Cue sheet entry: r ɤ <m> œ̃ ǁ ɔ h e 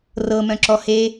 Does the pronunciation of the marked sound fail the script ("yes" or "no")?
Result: no